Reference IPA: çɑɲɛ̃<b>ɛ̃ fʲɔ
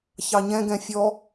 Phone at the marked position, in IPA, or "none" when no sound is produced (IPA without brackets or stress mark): ɡ